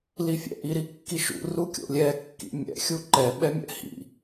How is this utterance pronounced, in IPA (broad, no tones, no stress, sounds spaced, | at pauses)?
l i fʲ ɛ̰ ʔ i ɾ i kː i ʃ ṵ r u kʲ o̰ lʲ ɛ kː ḭ mʲ ɛ̰ xʲ u ǃ ɛ ɓ ɛ mʲ ɛ̰ h ḭ